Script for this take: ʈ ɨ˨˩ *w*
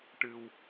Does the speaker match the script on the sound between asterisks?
yes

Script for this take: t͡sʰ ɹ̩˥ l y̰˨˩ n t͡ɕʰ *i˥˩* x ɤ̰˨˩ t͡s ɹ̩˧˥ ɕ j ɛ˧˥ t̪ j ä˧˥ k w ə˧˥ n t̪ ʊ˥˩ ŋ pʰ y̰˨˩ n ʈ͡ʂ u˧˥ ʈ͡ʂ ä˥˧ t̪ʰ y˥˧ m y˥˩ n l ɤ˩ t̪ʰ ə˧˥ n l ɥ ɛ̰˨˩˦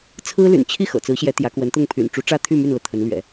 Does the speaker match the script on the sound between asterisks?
yes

